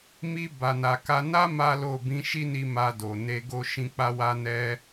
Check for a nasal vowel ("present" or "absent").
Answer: present